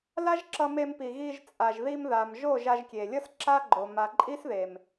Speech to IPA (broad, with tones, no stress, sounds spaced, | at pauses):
l a˦ ʒ ǁ ʌ˧ m e˧ m p i˨ ɣ i˧ ʒ t͡sʼ a˨ ʒ ð i˧ m ð a˨ m ʒ o˦˨ ʒ a˧ ʒ kʲ e˨ lʲ ʌ˦ s ǁ a˦ ɡ͡ǃ o˨ m a˨ ǃʼ i˦ s ð e˨ m